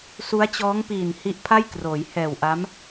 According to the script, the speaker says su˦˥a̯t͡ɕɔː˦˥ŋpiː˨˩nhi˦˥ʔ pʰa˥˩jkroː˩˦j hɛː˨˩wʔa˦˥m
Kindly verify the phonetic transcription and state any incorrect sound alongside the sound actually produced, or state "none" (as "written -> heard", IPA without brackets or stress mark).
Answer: none